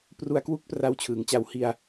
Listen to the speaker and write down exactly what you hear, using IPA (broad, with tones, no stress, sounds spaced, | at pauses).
p r u˧ a̯ k w u˦˥ k̚ p r a˧ w t͡ɕʰ ɯː˩˦ ŋ t͡ɕ a˨˩ w h i˧ a̯